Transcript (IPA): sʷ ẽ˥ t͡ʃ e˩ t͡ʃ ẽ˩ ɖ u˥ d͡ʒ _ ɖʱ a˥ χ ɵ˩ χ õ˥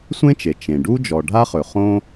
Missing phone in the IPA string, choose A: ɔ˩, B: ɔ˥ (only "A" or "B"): A